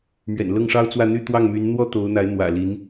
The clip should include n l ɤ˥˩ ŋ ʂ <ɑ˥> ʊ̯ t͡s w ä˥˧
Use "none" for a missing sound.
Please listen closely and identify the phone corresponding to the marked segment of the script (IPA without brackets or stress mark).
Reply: ɑ˥